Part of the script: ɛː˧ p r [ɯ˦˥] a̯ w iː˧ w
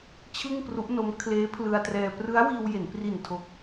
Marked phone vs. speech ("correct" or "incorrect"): correct